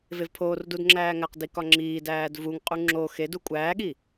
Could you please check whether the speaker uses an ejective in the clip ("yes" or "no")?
yes